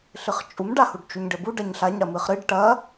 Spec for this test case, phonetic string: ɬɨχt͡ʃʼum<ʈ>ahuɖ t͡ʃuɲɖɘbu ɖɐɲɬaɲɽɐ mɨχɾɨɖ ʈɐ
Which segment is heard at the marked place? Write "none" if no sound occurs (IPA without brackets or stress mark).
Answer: ɖ